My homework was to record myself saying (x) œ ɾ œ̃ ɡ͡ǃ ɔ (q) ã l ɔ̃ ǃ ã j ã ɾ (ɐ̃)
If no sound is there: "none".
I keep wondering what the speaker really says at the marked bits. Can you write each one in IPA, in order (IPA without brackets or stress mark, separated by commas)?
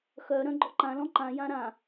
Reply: x, ǃ, ã